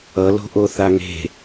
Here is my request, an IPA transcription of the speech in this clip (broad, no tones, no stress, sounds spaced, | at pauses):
ʌ l o̤ ʔ o θ a ŋ e̤